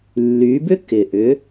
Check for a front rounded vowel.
present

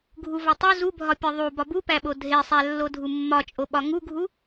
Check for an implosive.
present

